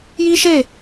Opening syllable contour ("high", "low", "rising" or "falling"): high